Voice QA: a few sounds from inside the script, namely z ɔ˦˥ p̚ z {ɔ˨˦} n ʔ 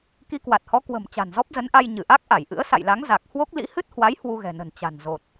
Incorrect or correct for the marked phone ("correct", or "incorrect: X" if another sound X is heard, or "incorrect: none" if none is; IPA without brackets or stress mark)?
incorrect: ə˨˦